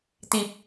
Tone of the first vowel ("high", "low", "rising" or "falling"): low